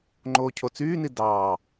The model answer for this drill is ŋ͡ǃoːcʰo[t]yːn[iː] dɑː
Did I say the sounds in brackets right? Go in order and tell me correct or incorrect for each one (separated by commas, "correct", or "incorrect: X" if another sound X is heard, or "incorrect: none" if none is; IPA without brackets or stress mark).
incorrect: t͡s, incorrect: i